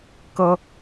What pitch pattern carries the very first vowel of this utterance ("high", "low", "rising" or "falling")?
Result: high